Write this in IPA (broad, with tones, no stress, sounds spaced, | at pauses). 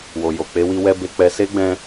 w o˨ j o˨ k͡p e˨˦ w i˧ w ɛ˦ b e˧ k͡p ɛ˧ s e˦ ɡ͡b ɛ̃˧